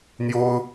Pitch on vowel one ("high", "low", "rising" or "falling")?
high